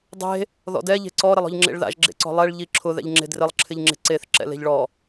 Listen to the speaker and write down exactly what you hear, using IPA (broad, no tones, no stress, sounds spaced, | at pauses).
dˤ e̤ | ð ɔ̰ d ɛ ʎ e̤ ǀ ɔ ɾ ɪ lˠ ɔ̤ ʎ ŋ͡ǁ ḛ ɭ ð a̰ ʒ ɡ͡ǁ ḛ ǀ ɔ̤ lˠ ɛ ɭ ʎ i ǁʰ ʊ ð ɛ̰ ʎ ŋ͡ǁ e̤ d r ɪ lˠ ǁʰ ɪ ʎ ŋ͡ǁ e̤ ǀ e θ ǁ ɛ̰ l e̤ ʎ ɭ ɔ